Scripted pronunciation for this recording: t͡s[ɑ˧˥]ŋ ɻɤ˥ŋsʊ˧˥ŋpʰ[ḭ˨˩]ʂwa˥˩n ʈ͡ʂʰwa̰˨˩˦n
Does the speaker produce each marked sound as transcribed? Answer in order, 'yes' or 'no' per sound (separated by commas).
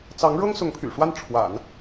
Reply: yes, no